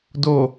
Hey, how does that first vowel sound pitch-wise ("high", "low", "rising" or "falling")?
low